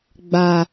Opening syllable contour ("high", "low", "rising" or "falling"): low